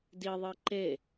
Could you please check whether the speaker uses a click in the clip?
yes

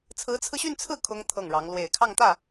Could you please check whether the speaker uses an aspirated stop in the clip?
yes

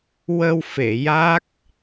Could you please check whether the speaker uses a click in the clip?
no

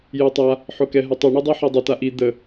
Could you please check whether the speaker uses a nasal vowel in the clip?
no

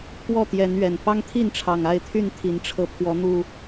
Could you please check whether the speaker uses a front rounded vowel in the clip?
yes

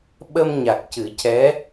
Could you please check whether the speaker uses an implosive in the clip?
yes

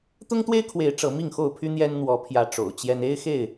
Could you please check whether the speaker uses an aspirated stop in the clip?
yes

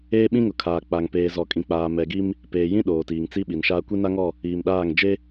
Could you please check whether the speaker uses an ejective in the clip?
yes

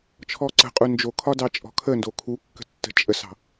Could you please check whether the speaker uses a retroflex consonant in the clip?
no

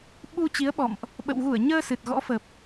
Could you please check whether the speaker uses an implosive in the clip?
yes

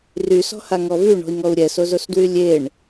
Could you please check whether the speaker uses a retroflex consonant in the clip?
yes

